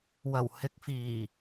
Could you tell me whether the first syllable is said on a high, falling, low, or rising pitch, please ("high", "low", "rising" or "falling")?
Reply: low